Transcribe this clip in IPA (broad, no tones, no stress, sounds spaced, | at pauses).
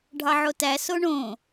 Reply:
ɖʱ ɑ ʕ o t æ s o ɳ õ